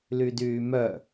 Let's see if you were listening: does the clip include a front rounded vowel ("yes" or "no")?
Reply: yes